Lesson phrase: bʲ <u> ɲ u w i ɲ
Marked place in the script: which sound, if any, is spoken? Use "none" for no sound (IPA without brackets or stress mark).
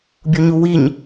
u